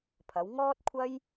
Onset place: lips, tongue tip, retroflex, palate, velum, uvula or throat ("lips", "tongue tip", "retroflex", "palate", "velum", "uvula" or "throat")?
lips